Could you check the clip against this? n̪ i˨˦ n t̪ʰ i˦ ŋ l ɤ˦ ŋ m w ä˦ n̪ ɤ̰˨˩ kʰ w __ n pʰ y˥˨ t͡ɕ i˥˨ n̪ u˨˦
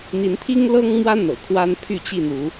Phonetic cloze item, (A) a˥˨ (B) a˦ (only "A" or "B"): B